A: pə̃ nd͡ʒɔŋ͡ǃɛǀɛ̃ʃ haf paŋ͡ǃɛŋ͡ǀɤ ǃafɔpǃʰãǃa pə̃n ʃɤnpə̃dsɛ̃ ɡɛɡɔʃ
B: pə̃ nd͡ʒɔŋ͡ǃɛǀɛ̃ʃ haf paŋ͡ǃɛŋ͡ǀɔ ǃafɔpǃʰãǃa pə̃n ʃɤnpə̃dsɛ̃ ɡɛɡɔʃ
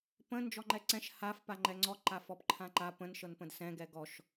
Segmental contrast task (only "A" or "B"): B